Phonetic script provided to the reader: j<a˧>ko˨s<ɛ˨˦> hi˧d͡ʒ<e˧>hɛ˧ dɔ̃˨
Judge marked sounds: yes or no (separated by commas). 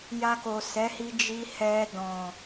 yes, yes, no